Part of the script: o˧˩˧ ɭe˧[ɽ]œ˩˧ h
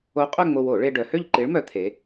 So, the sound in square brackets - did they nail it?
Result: no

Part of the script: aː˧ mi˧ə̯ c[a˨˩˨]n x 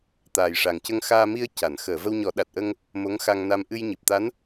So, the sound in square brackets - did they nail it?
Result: yes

